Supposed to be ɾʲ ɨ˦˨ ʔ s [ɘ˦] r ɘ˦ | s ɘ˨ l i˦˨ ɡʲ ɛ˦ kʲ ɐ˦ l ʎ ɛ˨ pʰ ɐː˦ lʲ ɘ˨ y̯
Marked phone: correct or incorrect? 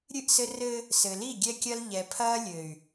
correct